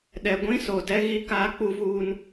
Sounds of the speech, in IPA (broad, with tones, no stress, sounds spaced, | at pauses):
ɗ ɛ˨ ɡʷ ĩ˦ s o˨ d ɛ˦ ɣ i˦ k aː˦ k͡p u˦ v uː˦ n